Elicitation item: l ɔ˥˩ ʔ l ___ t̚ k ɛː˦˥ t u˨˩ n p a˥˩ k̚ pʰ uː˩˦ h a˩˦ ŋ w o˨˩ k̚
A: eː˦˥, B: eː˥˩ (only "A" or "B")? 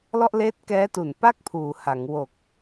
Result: A